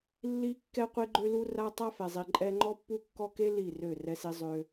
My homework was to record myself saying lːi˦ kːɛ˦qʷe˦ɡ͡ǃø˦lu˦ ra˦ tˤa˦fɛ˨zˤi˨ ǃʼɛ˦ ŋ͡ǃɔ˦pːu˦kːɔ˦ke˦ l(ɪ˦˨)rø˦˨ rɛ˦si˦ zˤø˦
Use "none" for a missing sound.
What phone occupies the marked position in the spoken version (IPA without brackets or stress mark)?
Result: i˦˨